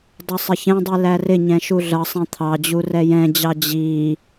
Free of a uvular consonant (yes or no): yes